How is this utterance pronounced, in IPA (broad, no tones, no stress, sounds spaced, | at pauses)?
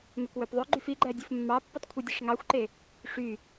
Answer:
m ø k w ø p ðˤ ø ɡ͡ǃ y f i ɡ͡ǃ æ dʲ ɯ f mː ɑ pː u tˤ kʷʰ i dʲ e ʂ ŋ ɑ xʷ ǃ e | ʂ y